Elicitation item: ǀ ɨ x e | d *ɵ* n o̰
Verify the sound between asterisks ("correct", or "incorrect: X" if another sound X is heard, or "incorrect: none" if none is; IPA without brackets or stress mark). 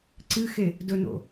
correct